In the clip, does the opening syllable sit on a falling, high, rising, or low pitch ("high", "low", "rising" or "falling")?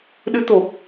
rising